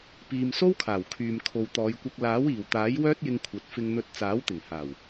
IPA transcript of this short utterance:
piː˨mso˥wkʰaː˨˩wkʰyː˨m kʰo˨wt̪ɔː˨˧jkʷɐ˧k̚ laː˨˥wiː˨˩wt̪aː˨˥j wœː˥t̚jɪ˧ŋkʷʰɐ˨t̚ fɪ˧ŋn̪ɵ˧t̚ t͡saː˨˥wt̪ɪ˨˩ŋhaː˨˩w

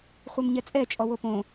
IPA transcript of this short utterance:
χʷɛmɲɛt͡sʼɛ t͡ʃʼɔwopõ

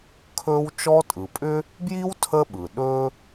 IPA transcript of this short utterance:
kʰɵ˦w t͡ʃɔ˦tʼɯ˩pʼʏ˥ | bji˥wtʰə˦ɓɯ˩ ɗɵ˥

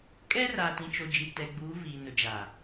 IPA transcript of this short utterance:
kʼɛ˦raː˨tĩ˨t͡ʃo˨ d͡ʒi˨tɛ˨ɡ͡buː˨˦ viː˨nʊ˨ d͡ʒaː˨

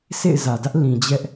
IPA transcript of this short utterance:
sʰḛ˦˨ɪ̯zä˨dä˦ʔ lĩ˨d͡ʑɛ˦ʔ

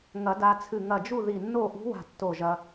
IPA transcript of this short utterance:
ŋɐ˨˩˦da˧t͡sʰɨ˧˩ ŋɐ˧˩d͡ʒu˥˨ði˧˩nːo˥˨ ʔṳ˧˥wa̤˧˩ tːo˧˩ʒɐ˧

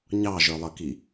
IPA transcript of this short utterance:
ɲɑʒə˞lˠəki

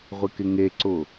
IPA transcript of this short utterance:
ʁʷɪkɪŋeǀʊ

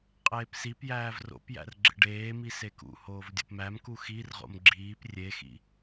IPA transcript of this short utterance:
qʼeːpsipjæːv ro̰pjæ̰r ɡ͡ǁḛɖeːmi sekṵhoːv dʲo̰pmæmku xirʁo̰m ɡ͡ǁiːp rʲexḭ

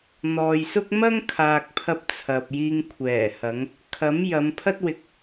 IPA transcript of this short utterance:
n̪ɔː˨jsʊ˥k̚ mɐ˥ŋkʰaː˨k̚pʰɐ˧p̚ t͡sʰɐ˨p̚jiː˧ŋ kʷʰɛː˨˩hɐ˨˧ŋ | kʰɐ˨˥m jɐ˨˧mpʰɐ˥t̚wɪ˧k̚

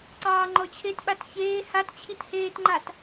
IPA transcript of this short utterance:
ǀɑːŋ͡ǃɔt͡ɕʰetɓat çeː hat t͡ɕʰitheːtŋ͡ǃat

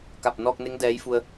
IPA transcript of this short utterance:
ka˧˩p̚ nɔː˧k̚ne˧˥ŋ dɛː˧˥jfu˧ə̯

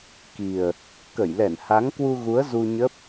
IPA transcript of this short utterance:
ki˨˩ə̯ | kə˧˩jlɛ˧˩nha˨˦ŋkwu˧ ɣu˨˦ə̯zu˧ɲə˦˥p̚

